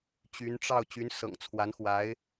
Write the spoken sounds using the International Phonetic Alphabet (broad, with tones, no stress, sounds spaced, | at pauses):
t͡ɕ y˧˥ n ʈ͡ʂ ɑ˥˩ ʊ̯ t͡ɕ y˧˥ n s ɤ̰˨˩ ŋ t͡sʰ w a˧˥ n x w a˧˥ ɪ̯